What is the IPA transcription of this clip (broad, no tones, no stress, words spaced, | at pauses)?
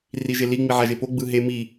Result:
riʒeli ŋ͡miʕaʒepo ɡ͡bɯɦe mi